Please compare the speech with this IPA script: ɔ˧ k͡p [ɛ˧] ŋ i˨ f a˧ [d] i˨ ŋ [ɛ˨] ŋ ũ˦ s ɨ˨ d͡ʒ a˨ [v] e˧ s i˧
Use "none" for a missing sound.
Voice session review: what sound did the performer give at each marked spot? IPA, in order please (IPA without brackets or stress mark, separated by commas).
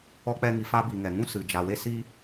ɛ˧, b, ɛ˨, w